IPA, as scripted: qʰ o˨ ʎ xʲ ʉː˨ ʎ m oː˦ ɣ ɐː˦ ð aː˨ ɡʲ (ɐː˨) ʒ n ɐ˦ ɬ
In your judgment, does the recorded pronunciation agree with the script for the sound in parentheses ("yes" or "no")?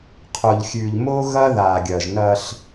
yes